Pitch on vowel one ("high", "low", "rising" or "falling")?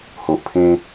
low